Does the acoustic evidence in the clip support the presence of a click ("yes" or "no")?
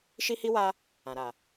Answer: no